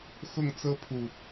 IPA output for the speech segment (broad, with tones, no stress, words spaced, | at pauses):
xʊ˥˨ŋ t͡sɤ˦pʰu˨˩